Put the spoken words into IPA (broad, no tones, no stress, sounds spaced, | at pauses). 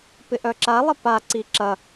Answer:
p ɪ ʔ œ ǁ a lˠ ɪ p a ǀ i ǁ ɐ